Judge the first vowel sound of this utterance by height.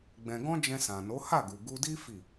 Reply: mid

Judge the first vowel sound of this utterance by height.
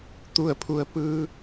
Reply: high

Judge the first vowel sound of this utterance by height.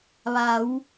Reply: low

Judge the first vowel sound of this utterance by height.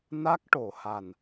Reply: low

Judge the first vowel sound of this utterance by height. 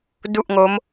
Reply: high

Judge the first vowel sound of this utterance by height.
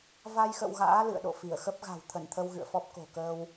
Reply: low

